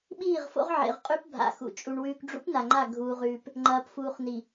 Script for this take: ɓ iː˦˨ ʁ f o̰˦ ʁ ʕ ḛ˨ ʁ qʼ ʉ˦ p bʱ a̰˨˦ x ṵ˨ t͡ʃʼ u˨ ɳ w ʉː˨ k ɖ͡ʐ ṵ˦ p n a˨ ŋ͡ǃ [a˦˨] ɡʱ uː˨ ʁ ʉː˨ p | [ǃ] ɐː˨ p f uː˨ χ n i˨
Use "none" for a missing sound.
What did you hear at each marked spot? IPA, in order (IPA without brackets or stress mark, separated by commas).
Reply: a˦˨, ŋ͡ǃ